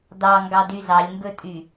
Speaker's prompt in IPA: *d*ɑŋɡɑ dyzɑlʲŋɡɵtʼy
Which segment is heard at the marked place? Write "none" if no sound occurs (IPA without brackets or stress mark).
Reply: d